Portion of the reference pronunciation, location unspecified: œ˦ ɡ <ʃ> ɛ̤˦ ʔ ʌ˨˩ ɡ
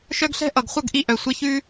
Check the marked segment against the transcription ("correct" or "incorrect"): incorrect